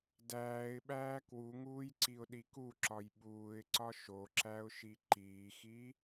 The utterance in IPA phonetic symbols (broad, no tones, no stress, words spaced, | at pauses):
dæːɪ̯ɓæː kwuŋuːj ǀiʊ̯ɗikuǁɒj ɓuːɪ̯ǀɒ ʃoǁæʊ̯ʃi ǃiːxi